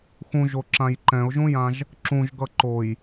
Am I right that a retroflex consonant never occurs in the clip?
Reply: yes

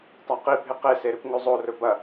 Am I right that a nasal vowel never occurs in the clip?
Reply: yes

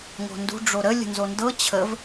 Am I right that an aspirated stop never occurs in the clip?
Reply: no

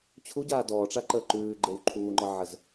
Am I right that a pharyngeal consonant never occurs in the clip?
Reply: no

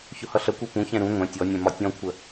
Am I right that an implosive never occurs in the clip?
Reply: yes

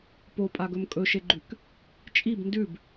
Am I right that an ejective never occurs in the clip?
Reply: no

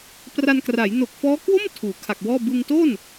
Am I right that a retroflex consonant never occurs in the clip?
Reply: yes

